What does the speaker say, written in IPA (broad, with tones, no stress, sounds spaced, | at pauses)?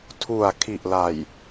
tʰ u˨˩ a̯ kʰ i˨˩ ʔ l a˨˩ j